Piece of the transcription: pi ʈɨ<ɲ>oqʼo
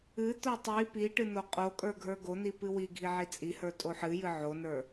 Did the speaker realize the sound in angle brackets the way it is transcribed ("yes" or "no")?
no